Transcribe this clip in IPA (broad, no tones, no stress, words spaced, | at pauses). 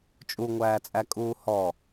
t͡ʃʼuŋʷæːt͡sʼækʼuː hɔ